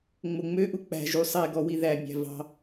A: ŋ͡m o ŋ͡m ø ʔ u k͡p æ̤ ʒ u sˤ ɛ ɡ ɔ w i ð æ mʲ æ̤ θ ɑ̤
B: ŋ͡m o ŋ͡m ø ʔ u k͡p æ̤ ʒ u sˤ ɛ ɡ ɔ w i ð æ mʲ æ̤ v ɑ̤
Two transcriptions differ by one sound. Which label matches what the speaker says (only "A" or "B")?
B